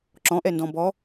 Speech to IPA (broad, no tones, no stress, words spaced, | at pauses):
ǁɔ̃ʔɛndɔ̃ bɔ